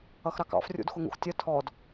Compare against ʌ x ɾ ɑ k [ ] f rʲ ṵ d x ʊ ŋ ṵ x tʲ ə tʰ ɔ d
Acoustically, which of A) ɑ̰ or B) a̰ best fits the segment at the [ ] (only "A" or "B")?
A